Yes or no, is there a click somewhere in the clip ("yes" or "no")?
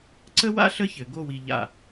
yes